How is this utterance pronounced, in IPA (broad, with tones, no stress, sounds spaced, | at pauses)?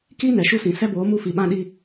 k i˦ n ɛ˨ ʃ u˦ s ĩ˨ s ɛ˦ b oː˨˦ m u˦˨ f i˨ ɓ ã˦ ɗ i˦